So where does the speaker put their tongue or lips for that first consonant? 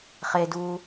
uvula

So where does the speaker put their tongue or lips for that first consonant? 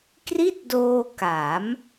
velum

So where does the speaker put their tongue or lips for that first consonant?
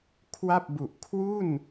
velum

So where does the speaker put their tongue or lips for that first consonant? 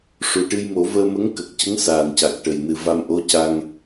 retroflex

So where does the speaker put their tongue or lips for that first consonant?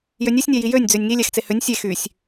palate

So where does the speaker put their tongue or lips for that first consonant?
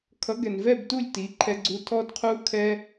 velum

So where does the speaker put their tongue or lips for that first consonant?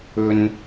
tongue tip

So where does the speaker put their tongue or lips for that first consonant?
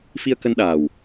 lips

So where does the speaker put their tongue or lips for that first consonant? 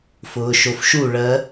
lips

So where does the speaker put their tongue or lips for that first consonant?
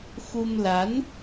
velum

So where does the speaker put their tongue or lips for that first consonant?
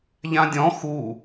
palate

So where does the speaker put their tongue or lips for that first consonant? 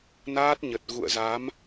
tongue tip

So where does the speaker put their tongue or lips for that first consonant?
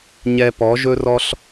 palate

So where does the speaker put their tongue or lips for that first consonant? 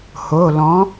throat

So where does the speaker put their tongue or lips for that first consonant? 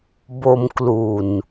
lips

